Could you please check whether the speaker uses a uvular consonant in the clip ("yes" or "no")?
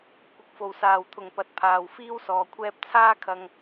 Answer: no